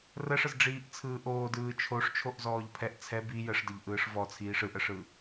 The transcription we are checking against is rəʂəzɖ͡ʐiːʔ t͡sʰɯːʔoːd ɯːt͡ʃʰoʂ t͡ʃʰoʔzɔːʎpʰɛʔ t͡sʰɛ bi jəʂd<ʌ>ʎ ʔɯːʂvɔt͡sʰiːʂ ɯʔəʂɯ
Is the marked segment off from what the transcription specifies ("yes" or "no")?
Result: yes